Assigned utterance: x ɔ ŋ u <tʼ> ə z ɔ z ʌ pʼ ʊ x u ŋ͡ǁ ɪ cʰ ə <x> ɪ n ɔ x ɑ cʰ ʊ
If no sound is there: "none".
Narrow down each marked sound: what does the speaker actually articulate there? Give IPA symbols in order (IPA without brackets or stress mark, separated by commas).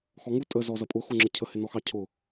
tʼ, h